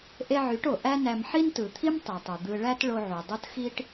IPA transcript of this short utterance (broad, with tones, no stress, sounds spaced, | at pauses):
ʔ e˧ ʕ y˩˧ ʈ o˩ ʔ æ˥ n æ˧ m ħ i˥ n t ɯ˩ t̪ʰ i˥ m tˤ i˩ tˤ u˩ d̪ ɯ˧ ɭ æ˥ t ɭ o˧ ʕ u˩ dˤ o˥ t x i˥ ʈ